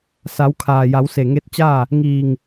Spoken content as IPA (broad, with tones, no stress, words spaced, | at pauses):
sa˩˧wkʰaː˩ ja˩˧wse˧˩ŋe˧˥t̚t͡ɕaː˥˨ | ŋiː˧˩ŋ